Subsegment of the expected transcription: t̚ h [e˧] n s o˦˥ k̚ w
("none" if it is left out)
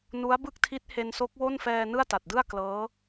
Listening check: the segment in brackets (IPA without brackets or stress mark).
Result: e˧